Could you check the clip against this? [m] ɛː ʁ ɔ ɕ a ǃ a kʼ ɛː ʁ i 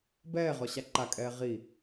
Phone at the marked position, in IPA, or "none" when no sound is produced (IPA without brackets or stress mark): b